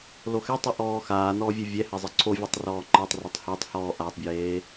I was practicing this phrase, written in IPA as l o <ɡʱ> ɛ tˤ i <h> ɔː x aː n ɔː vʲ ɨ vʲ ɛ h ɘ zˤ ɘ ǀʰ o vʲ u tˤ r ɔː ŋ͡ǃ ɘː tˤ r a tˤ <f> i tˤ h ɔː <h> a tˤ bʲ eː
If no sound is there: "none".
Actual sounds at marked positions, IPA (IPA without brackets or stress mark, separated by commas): x, ʔ, h, ʔ